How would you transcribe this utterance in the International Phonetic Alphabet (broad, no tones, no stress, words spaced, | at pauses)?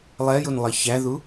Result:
lˠɛjunlˠʌ çæðu